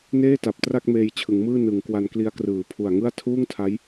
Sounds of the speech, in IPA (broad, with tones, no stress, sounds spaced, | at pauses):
n eː˥˩ t a˨˩ p̚ t r a˥˩ k̚ m eː˧ j t͡ɕʰ ɯ˩˦ ŋ m ɯː˥˩ n ɯ˩˦ ŋ k w a˧ n k l i˦˥ a̯ k r ɯː˩˦ pʰ u˨˩ a̯ ŋ ɯ˥˩ a̯ tʰ uː˥˩ ŋ tʰ a˦˥ j